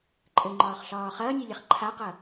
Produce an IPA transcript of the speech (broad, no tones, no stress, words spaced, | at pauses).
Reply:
ǃʼɘŋ͡ǃɒːχɬɒː χɐːnʲɛlʲɐχ ǃʰaqɐ